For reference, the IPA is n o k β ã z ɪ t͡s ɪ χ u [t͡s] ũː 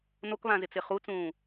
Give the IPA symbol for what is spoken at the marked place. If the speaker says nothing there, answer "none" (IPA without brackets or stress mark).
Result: t͡s